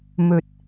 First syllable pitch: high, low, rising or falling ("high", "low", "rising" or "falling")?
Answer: low